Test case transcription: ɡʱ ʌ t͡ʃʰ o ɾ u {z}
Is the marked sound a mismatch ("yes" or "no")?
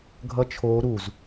no